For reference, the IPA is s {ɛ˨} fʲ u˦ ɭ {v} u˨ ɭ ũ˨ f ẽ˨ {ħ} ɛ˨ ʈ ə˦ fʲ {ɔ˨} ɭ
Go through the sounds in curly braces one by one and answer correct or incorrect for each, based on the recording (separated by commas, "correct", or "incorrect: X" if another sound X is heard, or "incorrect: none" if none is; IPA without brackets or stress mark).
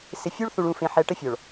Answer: incorrect: ɪ˨, incorrect: θ, correct, correct